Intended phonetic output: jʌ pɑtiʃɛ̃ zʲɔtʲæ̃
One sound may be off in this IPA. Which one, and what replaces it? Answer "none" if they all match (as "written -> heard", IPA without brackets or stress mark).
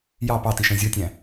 ʌ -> ɑ